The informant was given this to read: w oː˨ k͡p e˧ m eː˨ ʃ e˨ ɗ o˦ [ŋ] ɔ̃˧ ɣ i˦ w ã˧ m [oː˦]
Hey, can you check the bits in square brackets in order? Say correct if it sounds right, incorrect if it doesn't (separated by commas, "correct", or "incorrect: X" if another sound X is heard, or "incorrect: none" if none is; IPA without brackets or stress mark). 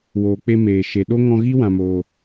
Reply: correct, incorrect: oː˧